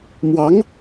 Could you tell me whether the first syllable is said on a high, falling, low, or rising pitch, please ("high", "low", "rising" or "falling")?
rising